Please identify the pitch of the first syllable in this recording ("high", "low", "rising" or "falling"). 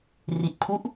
low